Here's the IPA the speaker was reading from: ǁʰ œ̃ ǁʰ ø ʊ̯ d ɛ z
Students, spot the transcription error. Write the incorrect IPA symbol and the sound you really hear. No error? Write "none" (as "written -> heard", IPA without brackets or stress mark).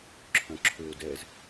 none